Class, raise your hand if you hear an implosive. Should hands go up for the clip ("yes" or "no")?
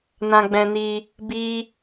no